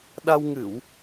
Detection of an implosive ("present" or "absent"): present